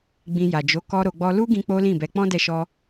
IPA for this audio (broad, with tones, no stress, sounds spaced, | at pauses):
ɡ͡b ĩ˧ j a˨ d͡ʒ o˨˦ k ɔ˦ ɾ o˧ ɡ͡b ɔ˦ l u˦ ɡ ĩ˧ k͡p o˦ l ĩ˦˨ b ɛ˧ k͡p ɔ̃˦ d ɛ˧ ʃ ɔ˧